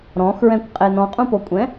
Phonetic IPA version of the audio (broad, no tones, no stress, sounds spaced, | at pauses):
ɾ ɔ̃ x ɹ ɛ̃ kʷ qʼ e n ɔ̃ qʼ ũ p o kʷʼ ɛ̃